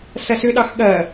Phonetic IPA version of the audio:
s ɐ s ʏ ɗ ɑ x ɠ ɐ

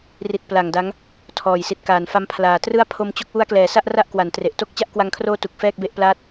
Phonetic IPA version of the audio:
r i˨˩ t̚ p l a˨˩ ŋ d a˦˥ ŋ | tʰ ɔː˨˩ j s i˨˩ t̚ k aː˨˩ n f a˦˥ m pʰ l aː˨˩ t r ɯ˥˩ a̯ pʰ o˧ m t͡ɕ o˦˥ k̚ w u˦˥ a̯ k l ɛː˨˩ s a˥˩ ʔ r a˥˩ ʔ k w a˩˦ n t r e˨˩ ʔ t o˥˩ k̚ t͡ɕ a˦˥ ʔ k w a˧ ŋ kʰ r oː˦˥ t u˨˩ k̚ f ɛː˥˩ k̚ b e˥˩ ʔ p l aː˥˩ t̚

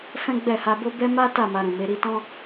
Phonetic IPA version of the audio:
f ɛ̃˦ ɡ͡b ɛ˦˨ h a˧ b o˦ b ɛ˦ m a˦ t a˦˨ m a˧ ɾ ũ˨ m e˨˦ ɾ i˧ t ɔ̃˦

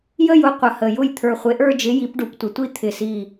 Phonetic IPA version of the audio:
j ə˥˧ j ʊ˥˧ qʷ ə˨˩ h ə˨˩ j ʊ˥˩ j t̪ʰ ə˞˨˩ χʷ e˩˥ ʔ ə˞˥˧ d͡ʒ ɪ˩˥ j i˩˥ p ɖ u˨˩ p tʷ ɪ˨˩ tʷ i˥˧ t̪ʰ ɪ˨˩ s i˨˩

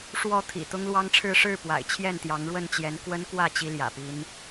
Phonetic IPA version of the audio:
ʂ w ɔ˥˨ t̪ʰ ḭ˨˩ t̪ ʊ˦ ŋ l w ɑ˦ ŋ ʈ͡ʂʰ ɻ̩˥˨ ʂ ɻ̩˥˨ p w a̰˨˩ ɪ̯ t͡ɕʰ j ɛ˥˨ n t̪ j ɑ˨˦ ŋ ɻ w ə˥˨ n t͡ɕ j ɛ˨˦ n k w ə˦ n k w ä˥˨ t͡ɕ i˦ l j ä̰˨˩ p i˦ n

